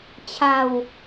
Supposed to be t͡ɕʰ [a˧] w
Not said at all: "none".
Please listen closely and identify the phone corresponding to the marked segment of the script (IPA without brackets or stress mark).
a˧